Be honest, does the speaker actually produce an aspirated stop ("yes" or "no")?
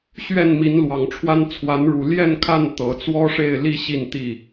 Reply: yes